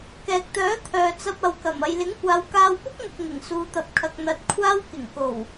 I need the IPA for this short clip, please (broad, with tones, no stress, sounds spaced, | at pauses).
k ɛː˨ k̚ t̪ œː˨˥ t̪ʰ œː˨ t͡s ɐ˧ p̚ ɐ˨ w k ɐ˨˩ m ɐ˨ j l ɪ˨˥ ŋ kʷ aː˨˧ w k aː˧ w p ʊ˥ k̚ ŋ ʊ˨ k̚ ŋ ɪ˨˩ ŋ s uː˧ t̪ ɐ˧ p̚ kʰ ɐ˧ k̚ n̪ ɐ˨ t̚ kʷʰ aː˥ w k ɪ˨˩ ŋ k o˨˩ w